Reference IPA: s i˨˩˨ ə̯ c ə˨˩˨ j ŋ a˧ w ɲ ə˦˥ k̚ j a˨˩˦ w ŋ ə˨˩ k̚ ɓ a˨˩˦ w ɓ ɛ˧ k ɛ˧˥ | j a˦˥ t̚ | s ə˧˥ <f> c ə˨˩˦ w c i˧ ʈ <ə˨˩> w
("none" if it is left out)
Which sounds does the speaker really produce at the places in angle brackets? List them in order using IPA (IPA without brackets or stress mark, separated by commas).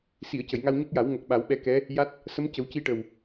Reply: m, ə˨˩